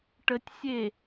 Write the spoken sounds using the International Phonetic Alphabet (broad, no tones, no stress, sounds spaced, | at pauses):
ʈ ə tʲ sʲ e